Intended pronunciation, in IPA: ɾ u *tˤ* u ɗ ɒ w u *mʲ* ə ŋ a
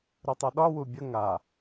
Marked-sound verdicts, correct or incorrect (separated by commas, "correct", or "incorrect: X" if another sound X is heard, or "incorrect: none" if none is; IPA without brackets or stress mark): correct, incorrect: bʲ